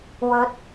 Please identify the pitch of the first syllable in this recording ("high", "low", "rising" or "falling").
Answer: rising